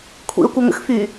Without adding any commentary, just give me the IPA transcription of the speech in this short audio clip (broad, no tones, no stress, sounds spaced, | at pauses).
kʷʰ ḭ ə̯ kʷ ə ŋ ə̰ x f y